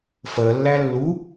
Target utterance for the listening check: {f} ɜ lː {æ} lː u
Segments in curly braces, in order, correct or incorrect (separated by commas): correct, correct